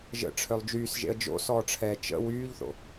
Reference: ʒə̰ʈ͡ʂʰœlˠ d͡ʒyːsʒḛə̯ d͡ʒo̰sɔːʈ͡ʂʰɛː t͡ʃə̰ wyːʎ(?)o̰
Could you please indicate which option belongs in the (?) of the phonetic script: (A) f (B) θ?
B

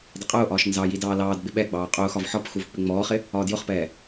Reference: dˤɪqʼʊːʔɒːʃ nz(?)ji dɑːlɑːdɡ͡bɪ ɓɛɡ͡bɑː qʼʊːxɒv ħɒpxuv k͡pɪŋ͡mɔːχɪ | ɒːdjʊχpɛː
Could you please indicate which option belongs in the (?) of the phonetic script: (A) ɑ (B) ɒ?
A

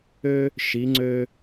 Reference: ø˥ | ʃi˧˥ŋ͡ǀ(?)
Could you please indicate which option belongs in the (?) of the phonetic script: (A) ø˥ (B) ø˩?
A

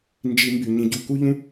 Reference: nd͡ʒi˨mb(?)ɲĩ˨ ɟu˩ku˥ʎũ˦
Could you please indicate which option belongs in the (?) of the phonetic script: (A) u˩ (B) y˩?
B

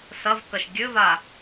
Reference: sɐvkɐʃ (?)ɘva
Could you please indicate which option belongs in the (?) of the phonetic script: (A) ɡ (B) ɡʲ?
B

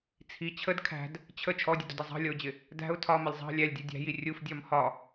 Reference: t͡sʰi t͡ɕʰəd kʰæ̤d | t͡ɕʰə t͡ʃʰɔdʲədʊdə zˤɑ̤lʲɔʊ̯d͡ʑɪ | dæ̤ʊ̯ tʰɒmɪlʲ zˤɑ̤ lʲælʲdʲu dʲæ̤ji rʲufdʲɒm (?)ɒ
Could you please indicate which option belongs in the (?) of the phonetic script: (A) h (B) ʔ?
A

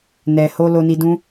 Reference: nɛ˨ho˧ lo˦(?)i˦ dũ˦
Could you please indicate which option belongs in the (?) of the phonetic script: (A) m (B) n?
B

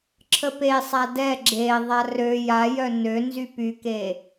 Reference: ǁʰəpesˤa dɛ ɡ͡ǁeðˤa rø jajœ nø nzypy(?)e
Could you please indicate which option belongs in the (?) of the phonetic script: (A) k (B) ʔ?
A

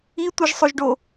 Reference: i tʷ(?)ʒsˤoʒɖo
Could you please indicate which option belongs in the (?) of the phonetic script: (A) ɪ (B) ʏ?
A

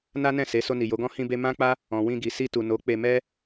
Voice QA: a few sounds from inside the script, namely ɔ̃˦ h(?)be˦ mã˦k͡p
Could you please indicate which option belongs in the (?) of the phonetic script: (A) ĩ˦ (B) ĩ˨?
A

